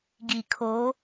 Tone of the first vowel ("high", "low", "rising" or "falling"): low